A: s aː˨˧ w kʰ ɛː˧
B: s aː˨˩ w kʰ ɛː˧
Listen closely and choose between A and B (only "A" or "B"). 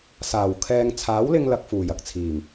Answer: B